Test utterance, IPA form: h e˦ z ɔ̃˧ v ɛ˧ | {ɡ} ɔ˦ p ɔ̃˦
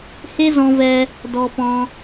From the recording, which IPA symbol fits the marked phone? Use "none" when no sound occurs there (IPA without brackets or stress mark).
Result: d